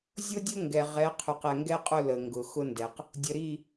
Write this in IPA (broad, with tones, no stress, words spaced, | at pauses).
zʲʊ˦dʲʊ˦ ŋɡɛ˨ʁɛ˨˦qʰʉ˨q ɛ˨ŋɡɛ˦qʼʊ˦˨ lə˨ŋɡʊ˨ xʊ˦ndɛ˨q | dʲə˨ɾi˦˨